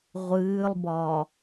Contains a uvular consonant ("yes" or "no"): yes